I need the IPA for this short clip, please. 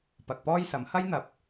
pɐ˨k̚pɔː˥jsɐ˨˥m hɐ˥jn̪ɐ˨p̚

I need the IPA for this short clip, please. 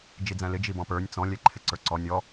d͡ʒid͡zæ̃lɪ d͡ʒibɔ̃pə˞nʲ t͡sɔ̃ lʲɛǃʰɪǀə˞ǀɔ nʲɔ

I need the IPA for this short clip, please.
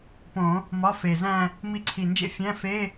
põ˨˩˦ | mɒ˧˥˧fe˨˩zæ̃˥˧ | mi˧˥ǀʰi˨˩nd͡ʒḛ˥ fʲæ̃˧˥˧fe˧˥˧

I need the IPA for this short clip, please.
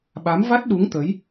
ɓa˨˦mva˦˥t̚ɗu˨˦ŋ t̪ə˨˦j

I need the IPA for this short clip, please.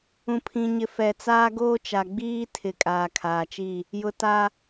ũ˨pʰĩ˨ɲɪ˨ fɛ˨t͡saː˦ɡoː˦t͡ʃa˨ ɡ͡biː˦tʰɪ˨ kʼaː˨kʰaː˨t͡ʃiː˦˨ | jʊ˨ taː˦

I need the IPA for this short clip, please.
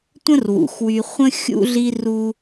tʷə̃˦rwṵ˨xwy˧ χʷə̃˦ xʲṵ˧ɮi˧r u˦

